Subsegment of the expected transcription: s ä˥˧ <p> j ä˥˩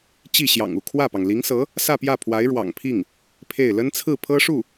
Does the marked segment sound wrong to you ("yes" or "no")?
no